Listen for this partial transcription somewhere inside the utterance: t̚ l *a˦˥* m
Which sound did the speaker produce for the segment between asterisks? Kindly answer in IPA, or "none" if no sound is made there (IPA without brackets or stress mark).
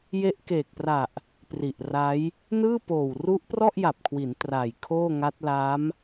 a˦˥